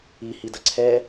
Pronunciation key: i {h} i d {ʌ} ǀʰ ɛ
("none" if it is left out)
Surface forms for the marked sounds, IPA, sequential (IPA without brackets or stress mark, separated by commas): h, ʌ